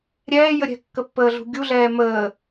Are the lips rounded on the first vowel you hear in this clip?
no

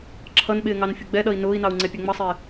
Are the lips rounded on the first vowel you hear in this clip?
no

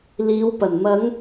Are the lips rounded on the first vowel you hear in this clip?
no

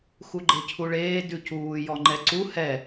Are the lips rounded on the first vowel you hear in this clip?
yes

